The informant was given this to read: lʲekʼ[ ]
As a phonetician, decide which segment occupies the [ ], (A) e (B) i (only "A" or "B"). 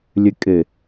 A